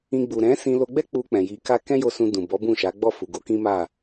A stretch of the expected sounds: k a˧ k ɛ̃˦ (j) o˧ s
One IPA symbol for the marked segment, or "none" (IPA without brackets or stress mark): j